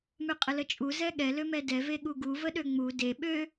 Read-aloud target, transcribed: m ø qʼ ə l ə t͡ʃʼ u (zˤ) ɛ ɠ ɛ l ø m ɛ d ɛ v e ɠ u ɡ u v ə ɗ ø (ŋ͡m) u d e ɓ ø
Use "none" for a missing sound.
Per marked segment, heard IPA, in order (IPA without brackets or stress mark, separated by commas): z, ŋ͡m